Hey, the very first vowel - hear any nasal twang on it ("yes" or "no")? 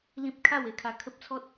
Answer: yes